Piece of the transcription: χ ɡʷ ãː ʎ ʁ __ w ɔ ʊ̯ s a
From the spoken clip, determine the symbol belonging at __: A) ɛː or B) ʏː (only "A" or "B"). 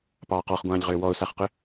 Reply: B